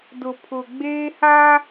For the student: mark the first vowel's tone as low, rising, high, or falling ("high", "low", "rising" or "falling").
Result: low